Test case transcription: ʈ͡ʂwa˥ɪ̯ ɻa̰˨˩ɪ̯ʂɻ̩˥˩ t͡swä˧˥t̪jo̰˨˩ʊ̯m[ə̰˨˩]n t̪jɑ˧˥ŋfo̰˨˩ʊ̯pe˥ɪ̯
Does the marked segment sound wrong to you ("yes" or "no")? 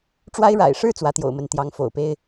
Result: yes